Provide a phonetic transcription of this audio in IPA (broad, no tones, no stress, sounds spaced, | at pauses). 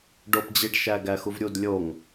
ɖ o p d͡ʑ i ɖ ʃ æ ɡ æ x u v ɾʲ u d lʲ o ŋ